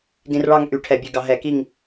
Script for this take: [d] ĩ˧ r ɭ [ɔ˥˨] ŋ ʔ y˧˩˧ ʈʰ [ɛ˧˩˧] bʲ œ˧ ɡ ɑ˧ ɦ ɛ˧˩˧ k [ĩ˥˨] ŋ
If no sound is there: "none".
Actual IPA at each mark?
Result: d, ɑ˥˨, ɛ˧˩˧, i˥˨

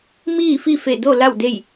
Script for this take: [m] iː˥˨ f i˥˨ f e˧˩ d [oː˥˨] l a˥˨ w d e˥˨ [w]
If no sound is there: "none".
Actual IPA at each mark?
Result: m, o˥˨, j

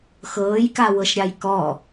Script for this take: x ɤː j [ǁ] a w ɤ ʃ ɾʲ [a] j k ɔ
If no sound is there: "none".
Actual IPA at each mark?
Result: k, a

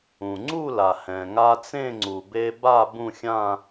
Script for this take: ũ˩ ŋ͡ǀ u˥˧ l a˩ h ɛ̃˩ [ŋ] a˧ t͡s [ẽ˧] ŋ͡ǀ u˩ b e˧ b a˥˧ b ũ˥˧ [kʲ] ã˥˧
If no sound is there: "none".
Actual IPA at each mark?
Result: ŋ, ẽ˥˧, xʲ

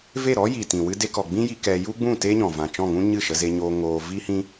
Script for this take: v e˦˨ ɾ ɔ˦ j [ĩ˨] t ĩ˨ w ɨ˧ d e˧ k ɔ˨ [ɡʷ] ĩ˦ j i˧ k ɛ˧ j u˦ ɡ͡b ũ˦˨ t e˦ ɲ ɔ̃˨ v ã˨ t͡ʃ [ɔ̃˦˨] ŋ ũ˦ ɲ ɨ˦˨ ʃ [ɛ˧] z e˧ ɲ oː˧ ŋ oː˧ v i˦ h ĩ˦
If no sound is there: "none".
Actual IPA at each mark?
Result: i˨, ɡ͡b, ɔ̃˦˨, ə˧

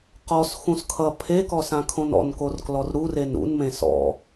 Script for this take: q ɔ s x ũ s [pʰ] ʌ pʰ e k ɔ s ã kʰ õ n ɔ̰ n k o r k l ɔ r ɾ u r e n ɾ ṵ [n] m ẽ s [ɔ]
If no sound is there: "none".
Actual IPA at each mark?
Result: kʰ, n, ɔ̰

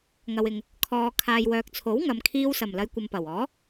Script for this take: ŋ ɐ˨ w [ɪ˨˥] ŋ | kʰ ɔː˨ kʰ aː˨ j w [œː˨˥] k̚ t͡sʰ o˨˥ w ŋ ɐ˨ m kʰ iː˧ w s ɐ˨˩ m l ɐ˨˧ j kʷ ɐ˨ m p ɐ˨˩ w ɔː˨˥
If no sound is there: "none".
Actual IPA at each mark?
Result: ɪ˨, œː˨

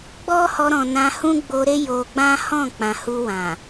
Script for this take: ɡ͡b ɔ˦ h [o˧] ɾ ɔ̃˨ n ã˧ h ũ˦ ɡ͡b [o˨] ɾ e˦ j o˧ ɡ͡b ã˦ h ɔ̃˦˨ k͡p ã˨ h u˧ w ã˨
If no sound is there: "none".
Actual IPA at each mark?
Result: ɔ˧, o˧

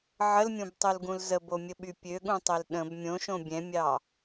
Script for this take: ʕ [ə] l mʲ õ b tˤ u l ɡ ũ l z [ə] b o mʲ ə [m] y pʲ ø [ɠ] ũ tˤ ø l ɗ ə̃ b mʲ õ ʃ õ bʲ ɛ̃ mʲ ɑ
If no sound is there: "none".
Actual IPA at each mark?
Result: ə, ə, ɓ, ɠ

